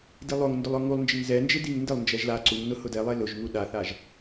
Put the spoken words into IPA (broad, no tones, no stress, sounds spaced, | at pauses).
d i lˠ o ŋ n d ʊ lˠ ʊ ŋ u lˠ n d͡ʒ ɪ ŋ z ɛ n d͡ʒ ɪ d i ŋ n d ɪ lˠ n d͡ʒ ɛ ʒ l a ǀ u ŋ n ʊ h ʊ d ɛ lˠ e l ʊ ʒ ŋ u ɗ a θ a ʒ